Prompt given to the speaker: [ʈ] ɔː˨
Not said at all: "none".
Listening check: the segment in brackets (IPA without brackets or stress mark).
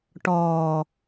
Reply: ʈ